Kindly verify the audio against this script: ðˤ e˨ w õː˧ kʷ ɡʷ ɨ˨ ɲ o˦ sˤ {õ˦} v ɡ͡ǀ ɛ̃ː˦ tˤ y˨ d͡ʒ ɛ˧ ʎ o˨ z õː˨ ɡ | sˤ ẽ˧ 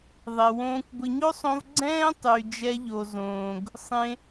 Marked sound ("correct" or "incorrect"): incorrect